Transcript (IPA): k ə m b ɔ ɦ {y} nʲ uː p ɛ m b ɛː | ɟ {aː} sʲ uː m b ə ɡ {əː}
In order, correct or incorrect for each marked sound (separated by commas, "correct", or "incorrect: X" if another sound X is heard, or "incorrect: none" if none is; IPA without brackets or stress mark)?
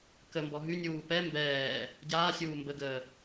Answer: correct, correct, correct